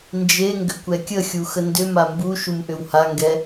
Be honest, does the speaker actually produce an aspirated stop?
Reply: no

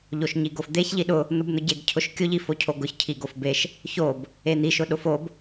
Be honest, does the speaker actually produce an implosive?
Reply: yes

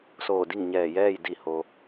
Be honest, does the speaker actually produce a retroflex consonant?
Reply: no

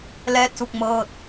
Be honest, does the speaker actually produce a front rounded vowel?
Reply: no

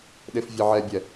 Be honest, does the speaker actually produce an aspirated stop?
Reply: no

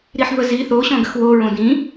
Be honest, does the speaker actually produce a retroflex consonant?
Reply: no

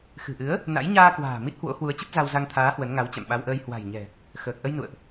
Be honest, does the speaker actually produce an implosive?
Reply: yes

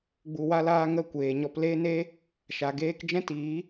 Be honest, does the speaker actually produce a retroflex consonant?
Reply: no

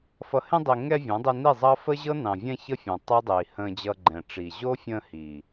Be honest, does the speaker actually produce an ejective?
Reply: no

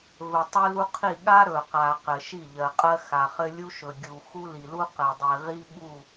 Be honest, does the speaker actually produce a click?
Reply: no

